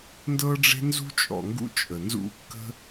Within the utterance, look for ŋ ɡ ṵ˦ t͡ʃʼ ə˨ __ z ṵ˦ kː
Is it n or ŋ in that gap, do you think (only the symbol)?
n